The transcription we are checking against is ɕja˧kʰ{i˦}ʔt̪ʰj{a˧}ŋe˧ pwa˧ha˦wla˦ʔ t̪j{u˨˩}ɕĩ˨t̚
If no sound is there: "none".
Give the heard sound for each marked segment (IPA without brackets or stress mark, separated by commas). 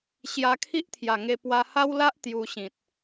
i˦, a˨˩, u˧